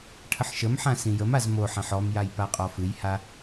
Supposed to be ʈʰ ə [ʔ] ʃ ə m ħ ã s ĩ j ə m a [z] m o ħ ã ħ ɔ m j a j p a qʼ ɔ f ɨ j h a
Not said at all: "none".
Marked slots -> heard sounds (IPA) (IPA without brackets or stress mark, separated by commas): ħ, z